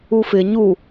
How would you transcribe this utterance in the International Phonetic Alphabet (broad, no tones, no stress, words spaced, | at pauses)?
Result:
ufɪ ɲu